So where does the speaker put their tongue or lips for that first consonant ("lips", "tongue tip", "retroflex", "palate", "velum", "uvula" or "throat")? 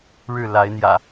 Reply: retroflex